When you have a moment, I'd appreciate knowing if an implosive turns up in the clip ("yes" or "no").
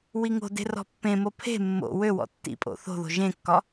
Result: no